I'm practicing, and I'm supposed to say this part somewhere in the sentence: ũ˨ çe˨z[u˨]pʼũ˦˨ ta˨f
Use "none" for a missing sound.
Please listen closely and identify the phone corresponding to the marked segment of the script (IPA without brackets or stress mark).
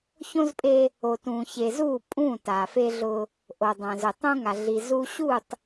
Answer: u˦˨